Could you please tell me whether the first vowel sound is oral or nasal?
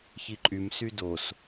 oral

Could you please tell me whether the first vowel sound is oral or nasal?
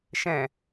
nasal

